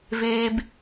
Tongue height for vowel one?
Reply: mid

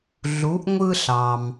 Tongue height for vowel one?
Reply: high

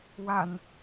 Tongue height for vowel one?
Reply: low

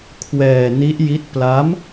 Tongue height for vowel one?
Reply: mid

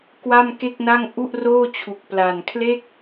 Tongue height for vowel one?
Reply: low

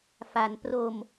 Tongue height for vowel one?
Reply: low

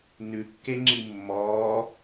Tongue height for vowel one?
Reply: high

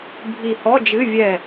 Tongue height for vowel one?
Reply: high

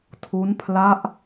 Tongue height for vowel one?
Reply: high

